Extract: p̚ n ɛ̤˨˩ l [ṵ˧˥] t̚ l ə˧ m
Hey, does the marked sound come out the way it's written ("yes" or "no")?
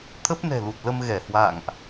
no